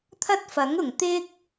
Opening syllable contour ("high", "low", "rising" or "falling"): high